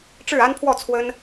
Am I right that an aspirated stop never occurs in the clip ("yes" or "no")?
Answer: no